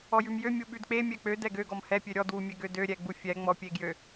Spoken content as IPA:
ɔjʉmjø mʲuɓʉdk͡pe mʲɛk͡pø dɛɡø ɡɔmhɛ pʲøɾʲɔd wumʲɛɡødø ɾʲɛɡ͡bufʲɛ ŋ͡mɔpʲeɡjø

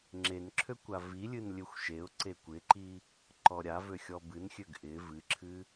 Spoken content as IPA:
ŋ͡ǁenǁʰø kʷavilʲɨn lʲøxʷʃeʊ̯ǀe kʷɪǃi | ǃɔɾʲavø xʲɔbɨnxʲøɡ ʔɪ vɨǁʰɨ

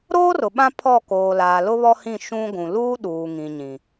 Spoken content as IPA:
ɾoː˦rʊ˨ ɓã˦pʰɔ˦˨ koː˨laː˨ lʊ˦βɔ˦hĩ˦˨ ʃũ˦ɡʷũ˨ luː˦ ɗuː˨ŋĩ˨ɲĩ˨

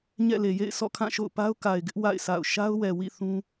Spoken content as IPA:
ɲɛ̰˦˨le˨ jḛ˦˨ɪ̯ sɔ̰˦˨kʰã˦˨ʃo̰˦˨ʊ̯pa˦ʊ̯ ka˨ɪ̯ɡɪ˦ʔ wa̰˦˨ɪ̯ sa̰˦˨ʊ̯ ʃa˦ʊ̯wɛ˨wḭ˦˨ θũ˦

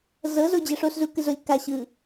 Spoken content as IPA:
zɤzod͡ʑɛ ʂoszukɯzolʲ ka ɕɯ

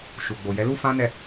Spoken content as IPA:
ʃu˨ɡ͡bo˨jɛ˨˦ lu˦fã˦nɛ˦˨

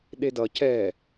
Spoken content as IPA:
ɗedʌ cɛ

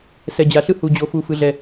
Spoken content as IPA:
sɛ˩d͡ʑa˩ɬɯ˧˩ hu˩d͡ʑo˩fu˩ fɯ˩ɮɛ˩

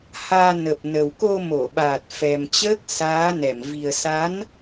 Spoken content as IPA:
haː˧ nə˨˩p̚ nə˨˩wko˧mo˧˩ɓaː˨˩t̚ fɛ˨˩mt͡ɕəː˦˥k̚ saː˨˦nɛ˧˩m vi˨˩ə̯ sa˨˦n

